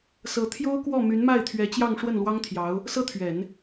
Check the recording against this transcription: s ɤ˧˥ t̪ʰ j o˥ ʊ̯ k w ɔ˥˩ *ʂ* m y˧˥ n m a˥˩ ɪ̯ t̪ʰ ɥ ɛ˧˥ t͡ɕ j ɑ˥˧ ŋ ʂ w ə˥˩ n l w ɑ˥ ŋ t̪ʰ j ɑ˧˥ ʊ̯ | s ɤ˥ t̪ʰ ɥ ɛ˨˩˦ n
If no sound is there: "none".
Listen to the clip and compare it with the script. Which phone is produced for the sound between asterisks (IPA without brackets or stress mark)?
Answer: none